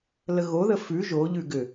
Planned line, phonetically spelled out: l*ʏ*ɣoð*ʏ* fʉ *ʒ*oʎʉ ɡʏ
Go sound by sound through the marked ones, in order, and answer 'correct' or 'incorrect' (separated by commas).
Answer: incorrect, incorrect, correct